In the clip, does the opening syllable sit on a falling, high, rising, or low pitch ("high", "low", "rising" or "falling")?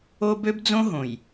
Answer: high